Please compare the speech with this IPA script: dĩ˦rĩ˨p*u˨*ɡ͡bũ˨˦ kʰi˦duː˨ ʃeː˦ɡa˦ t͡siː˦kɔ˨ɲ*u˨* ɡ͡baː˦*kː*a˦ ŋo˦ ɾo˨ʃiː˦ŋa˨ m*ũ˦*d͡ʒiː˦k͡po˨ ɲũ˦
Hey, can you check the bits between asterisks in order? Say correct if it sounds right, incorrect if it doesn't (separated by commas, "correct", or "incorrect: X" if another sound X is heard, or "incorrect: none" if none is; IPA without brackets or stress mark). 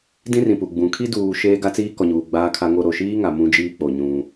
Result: correct, incorrect: uː˨, incorrect: kʰ, correct